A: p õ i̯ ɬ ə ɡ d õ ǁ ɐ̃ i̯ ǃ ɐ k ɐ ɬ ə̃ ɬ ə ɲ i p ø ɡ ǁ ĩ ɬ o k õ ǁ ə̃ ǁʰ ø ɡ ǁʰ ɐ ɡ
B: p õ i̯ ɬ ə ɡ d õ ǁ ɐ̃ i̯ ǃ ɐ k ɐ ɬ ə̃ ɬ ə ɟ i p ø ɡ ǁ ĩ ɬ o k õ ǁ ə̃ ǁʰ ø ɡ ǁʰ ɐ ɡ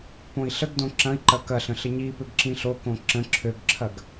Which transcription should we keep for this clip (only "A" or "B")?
A